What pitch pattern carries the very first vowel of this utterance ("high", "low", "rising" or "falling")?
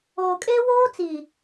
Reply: low